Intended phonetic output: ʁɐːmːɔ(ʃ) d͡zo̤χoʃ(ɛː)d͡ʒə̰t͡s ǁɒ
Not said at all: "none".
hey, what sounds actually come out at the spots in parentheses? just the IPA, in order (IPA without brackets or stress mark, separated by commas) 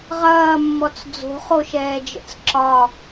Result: t͡s, ɛː